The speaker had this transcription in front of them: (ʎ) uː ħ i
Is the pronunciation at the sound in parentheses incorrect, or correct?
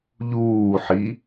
correct